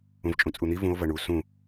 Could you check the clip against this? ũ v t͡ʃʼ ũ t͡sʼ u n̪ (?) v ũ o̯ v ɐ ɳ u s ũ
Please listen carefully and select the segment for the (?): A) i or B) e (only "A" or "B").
A